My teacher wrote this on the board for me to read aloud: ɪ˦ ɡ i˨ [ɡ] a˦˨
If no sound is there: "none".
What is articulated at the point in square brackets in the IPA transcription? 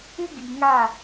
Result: ŋ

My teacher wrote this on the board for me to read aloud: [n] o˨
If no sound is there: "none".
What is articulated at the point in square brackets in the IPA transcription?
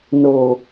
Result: n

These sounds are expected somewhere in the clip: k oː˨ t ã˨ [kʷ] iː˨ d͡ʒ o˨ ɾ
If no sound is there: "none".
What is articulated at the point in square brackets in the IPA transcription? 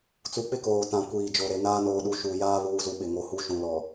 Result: kʷ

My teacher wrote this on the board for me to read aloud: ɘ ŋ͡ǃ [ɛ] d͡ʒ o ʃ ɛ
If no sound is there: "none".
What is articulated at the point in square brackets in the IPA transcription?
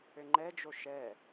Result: ɛ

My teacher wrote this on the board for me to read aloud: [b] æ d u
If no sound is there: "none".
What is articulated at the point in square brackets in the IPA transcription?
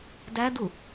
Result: d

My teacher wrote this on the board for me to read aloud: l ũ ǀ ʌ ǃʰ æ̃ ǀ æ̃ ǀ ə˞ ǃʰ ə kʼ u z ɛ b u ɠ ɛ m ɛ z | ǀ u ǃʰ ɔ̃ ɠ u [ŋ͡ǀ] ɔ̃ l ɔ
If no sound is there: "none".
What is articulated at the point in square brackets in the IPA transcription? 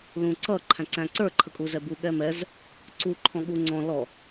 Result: ŋ͡ǀ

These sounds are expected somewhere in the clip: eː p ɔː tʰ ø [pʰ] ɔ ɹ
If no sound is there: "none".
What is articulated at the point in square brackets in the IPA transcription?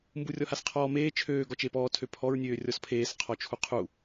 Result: pʰ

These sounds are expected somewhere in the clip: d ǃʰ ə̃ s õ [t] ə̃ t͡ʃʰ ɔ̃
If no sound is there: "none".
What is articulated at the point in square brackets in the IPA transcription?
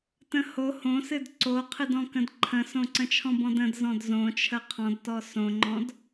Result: ǀ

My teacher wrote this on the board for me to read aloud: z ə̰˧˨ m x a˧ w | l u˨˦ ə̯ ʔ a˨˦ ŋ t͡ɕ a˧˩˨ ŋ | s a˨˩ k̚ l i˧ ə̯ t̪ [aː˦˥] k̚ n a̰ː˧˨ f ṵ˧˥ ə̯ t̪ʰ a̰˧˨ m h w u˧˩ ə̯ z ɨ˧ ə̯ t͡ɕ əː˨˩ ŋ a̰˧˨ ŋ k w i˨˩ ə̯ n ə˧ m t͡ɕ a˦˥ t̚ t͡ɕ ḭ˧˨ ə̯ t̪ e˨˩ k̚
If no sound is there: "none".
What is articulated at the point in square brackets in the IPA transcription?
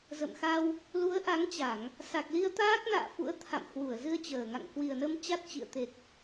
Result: aː˦˥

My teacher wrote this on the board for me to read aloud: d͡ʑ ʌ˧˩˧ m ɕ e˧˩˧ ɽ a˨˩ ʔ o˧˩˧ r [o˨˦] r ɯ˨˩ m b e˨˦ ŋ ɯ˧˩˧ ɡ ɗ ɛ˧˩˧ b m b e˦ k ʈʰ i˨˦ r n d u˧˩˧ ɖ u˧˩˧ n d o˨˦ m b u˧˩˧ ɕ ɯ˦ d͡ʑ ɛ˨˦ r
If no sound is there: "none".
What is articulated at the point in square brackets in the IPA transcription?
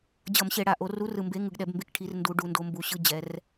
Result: u˨˦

